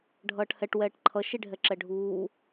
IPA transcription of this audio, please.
ɖʱ ʌː ʈ h ɛ ʈ w ɛː ʈ ǃʰ ʌ ʃ i ɖʱ ɛ ǁ ɛ ɖʱ uː

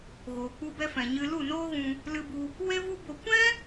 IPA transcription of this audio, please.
ɣ oː˨ k͡p u˧ b ɛ˧ f ɛ̃˨ ɲ ɨ˧ l u˦˨ n oː˦ ɣ ũ˧ | l ɨ˧ b u˧ | w e˦ v u˦ b o˧ kʷ ɛ̃˦

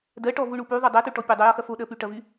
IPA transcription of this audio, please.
d ɜ ʈ ɔ v u ɳ u p y ðˤ u dˤ ɜ t u ʈ ɔ pʲ o dˤ o j ɔ x ɐ f o ɗ ɜ p y ʈ ɐ v y

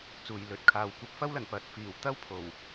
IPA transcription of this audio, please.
t͡s uː˨˩ j l ɵ˨˥ t̚ kʰ aː˨ w kʷ ɐ˥ p̚ f ɐ˥ w l ɐ˨˩ n p ɐ˨˥ t̚ f iː˨˩ w t̪ ɐ˥ w pʰ o˨˩ w

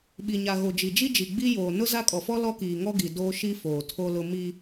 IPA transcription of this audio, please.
ɓ i˨ ɲ a˨ ɣ o˨ d͡ʒ i˨ d͡ʒ i˦ d͡ʒ i˨ ɡ͡b i˦ j oː˨ n ʊ˦ z a˦ kʼ ɔ˨ f ɔ˦ l ɔ˦ k iː˨ ŋ ɔ˦ ɡ i˨ d oː˦ ʃ i˦ f oː˨ tʰ o˦ l ʊ˦ m i˦

